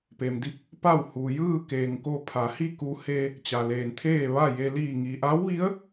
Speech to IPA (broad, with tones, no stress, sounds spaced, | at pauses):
p e˩ m d i˥˨ p̚ | p a˥˨ w h u˩ j ɯː˥˨ k eː˩ ŋ k o˧ pʰ a˩˧ h i˥˨ k u˧ h e˧ | t͡ɕ a˩ l eː˩ n t̪ʰ eː˥˨ ʋ a˥˨ j e˧ l iː˧˩ ŋ i˩ ʔ a˧˥ w ʋ i˧˥ ə̯